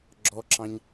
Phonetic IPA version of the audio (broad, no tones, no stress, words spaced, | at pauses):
ɡ͡ǁɔǁɑ̃ɲ